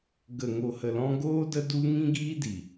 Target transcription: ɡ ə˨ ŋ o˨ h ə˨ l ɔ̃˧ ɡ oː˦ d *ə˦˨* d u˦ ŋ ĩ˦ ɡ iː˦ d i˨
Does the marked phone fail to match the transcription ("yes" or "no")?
yes